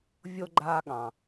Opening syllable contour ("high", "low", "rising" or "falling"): high